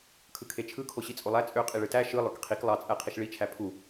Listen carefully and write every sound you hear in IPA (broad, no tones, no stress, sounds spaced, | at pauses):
kʰ ɯ kʰ e t͡ʃʰ ɯ kʰ o ɕ i t͡sʼ o lˠ æ t͡sʼ ø qʼ i ɭ ɯ t æ ʃ ɯ lˠ ø k qʰ i k lˠ ɑ t͡sʼ æ qʰ i ʃ ɭ i t͡ʃʰ æ pʰ u